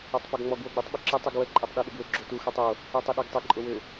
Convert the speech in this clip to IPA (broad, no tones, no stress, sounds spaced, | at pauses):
ə tˤ p o ɡ ŋ͡m ɔ ɡ w o ɡ͡b i tˤ ɓ ʏ ǁ ɪ tˤ y ɡ w ə ǃʼ ɛ tˤ ɗ y ɗ ɪ ɡ w ʏ ɡ͡ǁ o t u x ø tˤ o | y tˤ ɪ ɗ e ɡ tˤ ɪ ǃʼ ʊ w ʏ